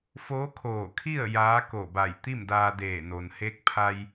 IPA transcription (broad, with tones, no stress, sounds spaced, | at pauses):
f oː˧˥ kʰ oː˧˩ kʰ i˥˨ ə̯ j aː˧˥ k o˧˩ b a˧˩ j t̪ i˥˨ m d aː˧ d eː˧˩ n o˩ n h e˧˥ k̚ pʰ a˧ j